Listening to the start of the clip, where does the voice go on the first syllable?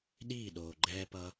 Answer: falling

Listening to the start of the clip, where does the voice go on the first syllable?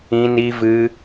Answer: high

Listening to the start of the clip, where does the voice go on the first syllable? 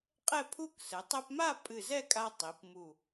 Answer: falling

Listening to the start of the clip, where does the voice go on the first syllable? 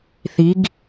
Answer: rising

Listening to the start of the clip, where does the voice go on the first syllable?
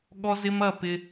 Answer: high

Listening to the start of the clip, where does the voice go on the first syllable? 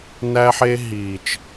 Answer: high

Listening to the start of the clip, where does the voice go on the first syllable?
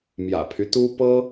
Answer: low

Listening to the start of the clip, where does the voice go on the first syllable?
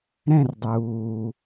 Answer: falling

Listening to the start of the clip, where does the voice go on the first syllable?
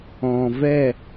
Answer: low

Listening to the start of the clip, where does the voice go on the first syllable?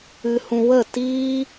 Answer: high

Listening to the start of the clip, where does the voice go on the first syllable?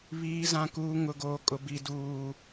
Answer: low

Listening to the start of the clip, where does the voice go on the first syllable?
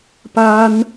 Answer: high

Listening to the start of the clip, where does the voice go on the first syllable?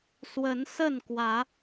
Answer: rising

